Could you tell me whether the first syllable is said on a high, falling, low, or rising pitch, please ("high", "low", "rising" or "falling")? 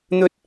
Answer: high